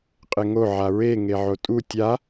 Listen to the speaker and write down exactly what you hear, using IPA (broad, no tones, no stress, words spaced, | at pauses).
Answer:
qʼɪŋo ʕaɹe ŋeʕotʼu tʲa